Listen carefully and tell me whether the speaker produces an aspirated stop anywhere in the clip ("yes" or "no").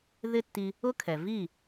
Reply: yes